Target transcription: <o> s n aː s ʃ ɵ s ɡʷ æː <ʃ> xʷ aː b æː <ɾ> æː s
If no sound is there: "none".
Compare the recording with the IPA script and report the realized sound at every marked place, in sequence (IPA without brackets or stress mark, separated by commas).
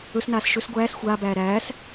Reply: ɵ, s, ɾ